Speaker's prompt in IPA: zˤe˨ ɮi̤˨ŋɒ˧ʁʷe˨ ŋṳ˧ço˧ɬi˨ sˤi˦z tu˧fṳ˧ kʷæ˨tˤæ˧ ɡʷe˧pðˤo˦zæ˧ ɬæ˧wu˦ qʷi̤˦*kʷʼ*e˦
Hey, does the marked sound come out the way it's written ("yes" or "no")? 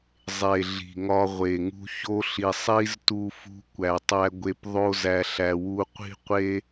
no